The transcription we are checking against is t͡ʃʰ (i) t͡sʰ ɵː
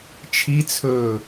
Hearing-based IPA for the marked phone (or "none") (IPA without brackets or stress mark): i